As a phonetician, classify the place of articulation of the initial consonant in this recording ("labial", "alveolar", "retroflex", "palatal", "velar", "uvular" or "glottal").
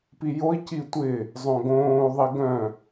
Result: labial